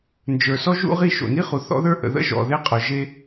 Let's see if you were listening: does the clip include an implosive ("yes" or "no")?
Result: no